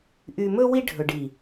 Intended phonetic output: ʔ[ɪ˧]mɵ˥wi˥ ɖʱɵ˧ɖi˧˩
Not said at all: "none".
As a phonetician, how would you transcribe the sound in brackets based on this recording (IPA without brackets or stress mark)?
y˧